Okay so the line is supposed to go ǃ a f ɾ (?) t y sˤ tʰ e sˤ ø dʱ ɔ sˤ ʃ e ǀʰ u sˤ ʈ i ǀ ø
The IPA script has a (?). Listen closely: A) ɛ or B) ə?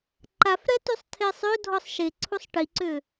A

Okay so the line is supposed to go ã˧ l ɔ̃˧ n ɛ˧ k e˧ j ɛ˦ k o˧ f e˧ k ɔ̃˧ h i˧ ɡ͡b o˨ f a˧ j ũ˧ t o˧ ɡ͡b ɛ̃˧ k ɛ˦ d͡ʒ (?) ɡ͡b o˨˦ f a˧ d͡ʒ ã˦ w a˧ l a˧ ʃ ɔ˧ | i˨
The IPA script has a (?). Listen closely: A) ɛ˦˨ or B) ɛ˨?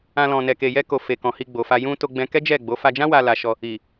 A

